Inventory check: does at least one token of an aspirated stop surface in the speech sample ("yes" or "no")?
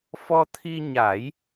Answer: yes